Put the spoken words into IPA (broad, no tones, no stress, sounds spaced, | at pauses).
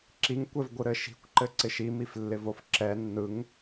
ǁ i ŋ kʷ ɛ v ɡʷ ɯ ɾ ɘ ʃ i̤ kʷ ǃ ɘ ǀ ɪ ʃ i m i f lː ɪ v o f ǁ ɛ nː ɯ ŋ